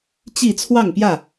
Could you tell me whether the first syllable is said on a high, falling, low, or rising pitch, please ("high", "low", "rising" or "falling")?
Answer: falling